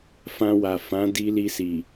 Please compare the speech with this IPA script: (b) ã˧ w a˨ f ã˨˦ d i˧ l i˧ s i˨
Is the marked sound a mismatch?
yes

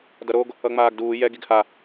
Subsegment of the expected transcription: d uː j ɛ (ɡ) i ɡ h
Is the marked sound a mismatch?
no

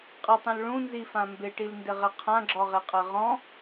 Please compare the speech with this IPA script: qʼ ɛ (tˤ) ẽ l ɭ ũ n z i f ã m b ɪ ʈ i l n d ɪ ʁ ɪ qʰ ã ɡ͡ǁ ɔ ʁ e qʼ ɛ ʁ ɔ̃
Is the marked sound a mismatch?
no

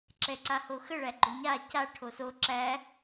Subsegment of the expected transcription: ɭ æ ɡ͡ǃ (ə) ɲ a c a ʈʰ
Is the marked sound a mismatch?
yes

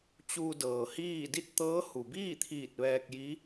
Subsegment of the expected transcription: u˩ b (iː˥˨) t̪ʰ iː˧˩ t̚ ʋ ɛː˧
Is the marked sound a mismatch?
no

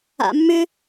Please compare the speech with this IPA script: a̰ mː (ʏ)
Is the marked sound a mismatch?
no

